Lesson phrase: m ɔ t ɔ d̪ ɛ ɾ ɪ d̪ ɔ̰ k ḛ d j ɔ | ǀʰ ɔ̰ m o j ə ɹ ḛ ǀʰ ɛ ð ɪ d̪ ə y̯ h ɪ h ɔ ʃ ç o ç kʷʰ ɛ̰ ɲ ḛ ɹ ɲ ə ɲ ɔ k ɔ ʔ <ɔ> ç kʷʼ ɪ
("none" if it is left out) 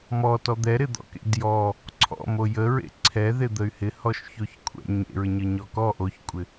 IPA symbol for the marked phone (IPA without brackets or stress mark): o